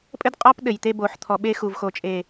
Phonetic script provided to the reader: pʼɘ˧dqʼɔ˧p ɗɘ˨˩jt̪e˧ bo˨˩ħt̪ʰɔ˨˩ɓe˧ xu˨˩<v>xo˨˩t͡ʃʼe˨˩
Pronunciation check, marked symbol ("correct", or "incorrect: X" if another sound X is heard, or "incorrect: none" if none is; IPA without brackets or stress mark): correct